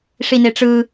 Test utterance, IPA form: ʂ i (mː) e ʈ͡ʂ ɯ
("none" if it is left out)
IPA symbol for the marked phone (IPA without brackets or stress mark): n